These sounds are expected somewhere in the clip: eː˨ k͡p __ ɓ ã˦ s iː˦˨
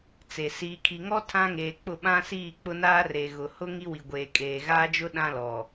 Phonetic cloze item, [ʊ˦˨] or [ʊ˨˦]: ʊ˦˨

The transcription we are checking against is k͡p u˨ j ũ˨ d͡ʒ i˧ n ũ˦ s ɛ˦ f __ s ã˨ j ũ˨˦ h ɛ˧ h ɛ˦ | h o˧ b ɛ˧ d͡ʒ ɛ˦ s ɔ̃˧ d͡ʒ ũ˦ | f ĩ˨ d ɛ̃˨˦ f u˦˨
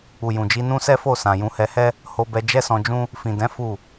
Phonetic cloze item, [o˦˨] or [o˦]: o˦˨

